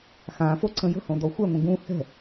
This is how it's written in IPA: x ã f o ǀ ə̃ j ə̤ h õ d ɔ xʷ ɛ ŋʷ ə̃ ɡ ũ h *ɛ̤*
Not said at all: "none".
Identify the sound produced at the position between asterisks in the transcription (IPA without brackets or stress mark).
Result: ɛ̤